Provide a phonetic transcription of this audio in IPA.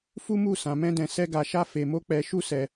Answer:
f u˦ m u˦˨ s ã˧ m ɛ̃˦ d ɛ̃˧ s ɛ˦ ɡ a˧ ʃ a˦ f e˧ m o˦ k͡p ɛ˧ ʃ u˦ s ɛ˧

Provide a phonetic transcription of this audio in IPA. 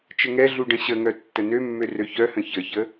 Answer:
t͡ʃ ə ŋ ɛ ɮ u ɖ ə̃ ɕ ə ŋ œ tː ə n ø mː ø r ø ç œ h ə̃ ç ə ç ə

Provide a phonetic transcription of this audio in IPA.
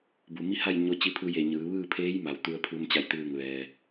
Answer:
b u˩ m i˥˨ h a˥˨ j ɲ o˧ t͡ɕ i˧ pʰ u˧ j e˧˩ ɲ ɯː˩˧ ʋ ɯː˥˨ pʰ eː˧˥ j m a˩ w t̪ u˧ ə̯ pʰ u˧ m t͡ɕ a˥˨ j t̪ ɯː˥˨ ŋ ʋ ɛː˧

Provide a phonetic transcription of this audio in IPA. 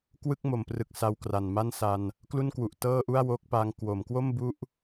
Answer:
k w ɯ˥˩ k̚ m o˩˦ m p r ɯ˨˩ k̚ s a˧ w k r a˨˩ n m a˥˩ n s a˧ n | k l u˥˩ n k w u˨˩ ʔ t ɤː˥˩ ʔ u˥˩ a̯ w o˦˥ k̚ p a˦˥ ŋ k w o˩˦ m k w o˥˩ m b u˦˥ ʔ

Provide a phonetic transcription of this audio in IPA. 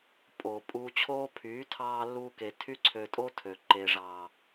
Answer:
pʼ oː˨ pʼ uː˧ t͡ɕʰ oː˦ pʰ yː˨˦ tʰ ɑː˧ lː u˧ k e˨ tʰ y˦ ǀʰ ø˧ tʼ o˦ tʰ ø˨ ǃ e˨ ʐ ɑː˨

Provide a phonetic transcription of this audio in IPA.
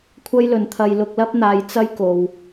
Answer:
kʷʰ ɐ˥ j l ɵ˨ n t̪ʰ ɐ˧ j l ʊ˧ k̚ l ɐ˥ p̚ n̪ aː˧ j t͡s ɐ˥ j k o˨ w

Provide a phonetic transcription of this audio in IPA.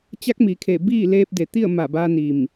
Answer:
t͡ɕ a˧˥ k̚ m i˩ kʰ e˧˩ b iː˥˨ l eː˧ p̚ d e˩ t̪ i˥˨ ə̯ m a˧˩ b a˧ n i˧˩ m

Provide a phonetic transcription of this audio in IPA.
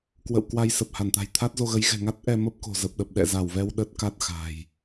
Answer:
k w ə̰˧˨ w k w a˧ j s ə˨˩ p̚ h a˧˩ n t̪ a̤˨˩ j t̪ʰ a˦˥ t̚ z o˧ ɣ ə˨˦ j ɣ ɛ̤˨˩ ŋ a˦˥ t̚ ʔ ɛ˧ m ə˦˥ p̚ k o̤˨˩ z ə˨˩ p̚ ɗ ə˨˩ p̚ ɗ ɛ̰˧˨ z a˧˩ w v ɛ˧ w ɗ ə˦˥ t̚ k a˦˥ t̚ x a̤˨˩ j

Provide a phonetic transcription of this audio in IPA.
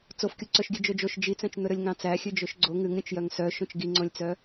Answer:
t͡s o f kʲ u ǀ œ ʃ ɡʲ ʉ d͡ʒ ɵ d͡ʒ o ʃ d͡ʒ i t͡s œ̃ t͡ʃ n̪ ɵ ɾ ɵ lʲ ŋ ɑ̃ t͡s æ xʲ ʉ d͡ʒ ɵ ʃ ɡ͡ǀ o ŋ ʉ ŋ ɾʲ õ t͡ʃ j œ ŋ s œ ʃ õ t͡ʃ ɡ i ŋ͡ǀ õ lʲ t͡s œ

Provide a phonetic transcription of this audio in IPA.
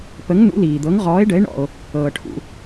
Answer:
p ə˨˥ ŋ n ṵ˨˥ l iː˨ d̪ ɤ˨˥ ŋ ʁ ɔː˨˥ e̯ ɖ ə˨˥ e̯ ɳ ɔ̰˨ o̯ | ɤː˨ ʈʰ ṵ˨

